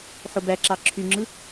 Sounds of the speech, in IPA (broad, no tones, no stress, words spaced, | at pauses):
ħobæǁɑ ǁʰyŋ͡ǁɯ